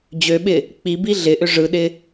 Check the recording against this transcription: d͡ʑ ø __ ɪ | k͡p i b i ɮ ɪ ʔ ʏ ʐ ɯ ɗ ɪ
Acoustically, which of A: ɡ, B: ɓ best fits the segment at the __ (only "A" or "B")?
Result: B